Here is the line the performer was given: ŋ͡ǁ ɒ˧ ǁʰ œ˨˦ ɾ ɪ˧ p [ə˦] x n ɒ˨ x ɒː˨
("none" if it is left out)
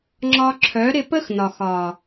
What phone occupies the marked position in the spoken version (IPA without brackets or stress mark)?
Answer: ə˦